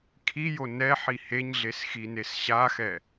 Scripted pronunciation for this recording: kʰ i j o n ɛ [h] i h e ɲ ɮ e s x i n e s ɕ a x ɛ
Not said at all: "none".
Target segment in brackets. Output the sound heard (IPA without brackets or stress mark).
ħ